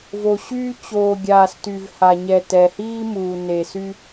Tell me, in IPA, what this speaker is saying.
v o˨ ɕ yː˦ t͡ɕ oː˨ ɡʲ aː˨ s t y˨ v h a˨ ɲ ɛ˨ t ɛ˨ h iː˦ m uː˨ n e˨ s y˦

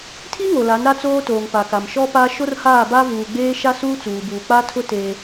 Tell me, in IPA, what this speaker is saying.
tʰ i˦ ŋ o˨ l a˨˦ n ɾ a˦ t͡s oː˦ t oː˨ ŋ p a˨ k a˨ m ʃ ɔ˦ p a˦ ʃ o˦ r h aː˦˨ b a˦ v uː˨ ɡ͡b eː˦ ʃ a˦ s uː˦ t͡s uː˨ b uː˨ k͡p a˦ tʰ ʊ˦ t eː˦

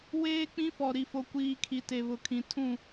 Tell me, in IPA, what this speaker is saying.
w eː˦ k͡p ĩ˦ f ɔ˨ ɾ i˨ f o˨ kʷ iː˨ kʰ i˨ t e˨ β ʊ˨ kʰ ĩ˨ tʰ ũ˦˨

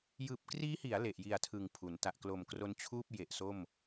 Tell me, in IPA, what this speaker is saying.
j ɯː˨˩ p̚ k r iː˦˥ h i˩˦ a̯ l e˨˩ ʔ j i˨˩ a̯ tʰ ɯ˨˩ ŋ pʰ u˩˦ n t a˨˩ ʔ k l o˨˩ m k r o˧ n t͡ɕʰ uː˥˩ p̚ j e˨˩ ʔ s o˥˩ m

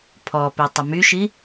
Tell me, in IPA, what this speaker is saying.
pʰ ɔ p i tˤ ə m y ʃ i

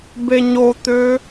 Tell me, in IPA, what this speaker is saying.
b e ɲ o t̪ ø

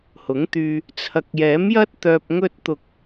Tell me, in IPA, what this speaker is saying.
h ʊ˨˥ ŋ t̪ yː˧ | t͡sʰ ɐ˨˥ k̚ j ɛː˨˥ m j ɐ˥ t̚ t̪ œː˧ p̚ ŋ ɵ˥ t̚ t̪ ʊ˧ k̚

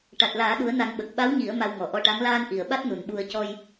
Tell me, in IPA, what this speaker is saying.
ʈ a˨˩ t̚ l aː˨˩˦ ɗ u˨˩˦ ə̯ n a˨˩˦ ŋ ɓ ə˨˩ k̚ ɓ a˧˥ w ɲ i˨˩˦ ə̯ m a˧ w ŋ ɔ˨˩ ʔ ɔ˧ ʈ a˧˥ ŋ l aː˧ n ʔ i˨˩ ə̯ ɓ a˦˥ t̚ n u˨˩ n ɓ u˧ ə̯ c ɔ˧ j

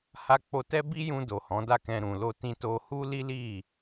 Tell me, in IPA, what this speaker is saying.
h a˧ k͡p o˧ t ɛ˦ b i˦ j ũ˧ d o˨ h ɔ̃˨˦ d a˦˨ k ɛ̃˧ ɾ ũ˨ l o˧ t ĩ˧ t o˧ h u˦ l i˦ l i˦˨

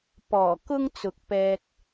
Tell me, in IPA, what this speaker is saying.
p ɔː˨˩ k ʊ˥ ŋ t͡s ʊ˨ k̚ p ɛː˧ k̚

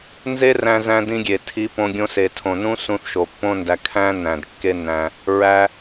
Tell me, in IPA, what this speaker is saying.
n z e˦ r æ̃˧ z æ̃˧ d ĩ˧ ɡʲ e˨ tʰ i˨˦ p õ˧ ɡʲ õ˧ s e˨ tʰ õ˨ n ũ˦ s ũ˧ θ ʃ o˨ pː õ˦ n d æ˧ kʰ æ̃˦ n æ̃˨ d kː e˦ nː æ̃˧ | ɹ æ˦

